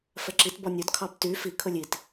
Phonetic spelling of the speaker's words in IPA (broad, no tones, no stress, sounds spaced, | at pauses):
f ɛ ǁ i t b ɔ nʲ ɵ d kʰ ɑ b t y f i kʰ ɵ lʲ i t